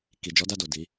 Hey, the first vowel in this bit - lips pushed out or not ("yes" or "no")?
no